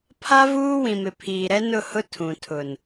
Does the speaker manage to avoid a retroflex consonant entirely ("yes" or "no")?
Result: yes